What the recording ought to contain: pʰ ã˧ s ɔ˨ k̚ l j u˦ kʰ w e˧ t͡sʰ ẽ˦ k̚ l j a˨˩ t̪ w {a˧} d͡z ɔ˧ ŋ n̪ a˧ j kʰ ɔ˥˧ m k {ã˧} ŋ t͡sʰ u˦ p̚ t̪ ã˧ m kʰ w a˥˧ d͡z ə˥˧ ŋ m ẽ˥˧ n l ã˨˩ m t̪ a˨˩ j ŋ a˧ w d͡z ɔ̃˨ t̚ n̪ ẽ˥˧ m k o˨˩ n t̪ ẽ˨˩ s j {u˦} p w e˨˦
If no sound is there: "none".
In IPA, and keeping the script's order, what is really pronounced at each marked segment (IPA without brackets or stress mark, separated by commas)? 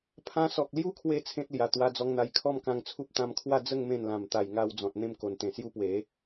a˧, ã˧, u˦